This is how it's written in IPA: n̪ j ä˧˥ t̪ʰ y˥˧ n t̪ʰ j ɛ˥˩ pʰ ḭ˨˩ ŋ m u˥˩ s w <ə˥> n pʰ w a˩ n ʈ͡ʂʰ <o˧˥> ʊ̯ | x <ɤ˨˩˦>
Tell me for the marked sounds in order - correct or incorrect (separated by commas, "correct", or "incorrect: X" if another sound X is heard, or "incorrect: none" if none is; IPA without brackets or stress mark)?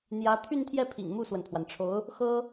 incorrect: ə˩, correct, incorrect: ɤ˥